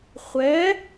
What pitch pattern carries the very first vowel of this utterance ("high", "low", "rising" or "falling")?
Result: rising